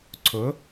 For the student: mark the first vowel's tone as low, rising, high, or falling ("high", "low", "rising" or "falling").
rising